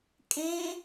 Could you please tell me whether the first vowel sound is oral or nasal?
nasal